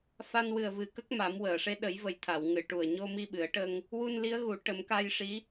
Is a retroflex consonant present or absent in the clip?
present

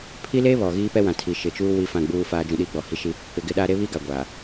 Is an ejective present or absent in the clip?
absent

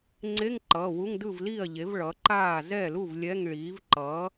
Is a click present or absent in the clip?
present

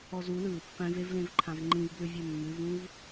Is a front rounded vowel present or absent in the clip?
absent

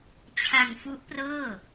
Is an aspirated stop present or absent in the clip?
present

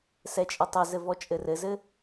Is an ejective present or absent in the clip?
present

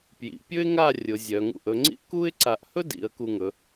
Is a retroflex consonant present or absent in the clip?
absent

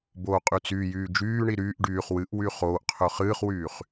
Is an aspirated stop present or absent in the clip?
present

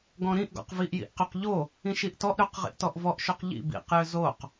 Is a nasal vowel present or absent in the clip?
present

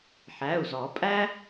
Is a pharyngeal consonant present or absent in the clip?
present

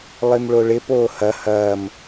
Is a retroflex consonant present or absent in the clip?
present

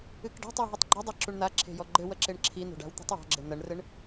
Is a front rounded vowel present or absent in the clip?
absent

